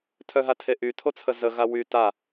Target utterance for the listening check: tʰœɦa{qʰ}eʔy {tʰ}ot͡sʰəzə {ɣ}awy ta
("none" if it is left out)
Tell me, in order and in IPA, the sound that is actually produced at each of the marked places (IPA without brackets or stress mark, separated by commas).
tʰ, tʰ, ɣ